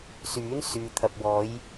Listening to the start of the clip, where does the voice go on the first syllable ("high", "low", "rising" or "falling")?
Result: rising